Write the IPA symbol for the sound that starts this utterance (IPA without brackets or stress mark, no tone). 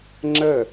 ŋ͡ǁ